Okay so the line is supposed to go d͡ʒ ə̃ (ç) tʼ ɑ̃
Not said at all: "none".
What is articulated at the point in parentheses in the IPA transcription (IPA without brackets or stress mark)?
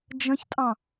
ç